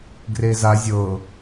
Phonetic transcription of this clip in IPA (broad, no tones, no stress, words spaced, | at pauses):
ɡreza zʲɤ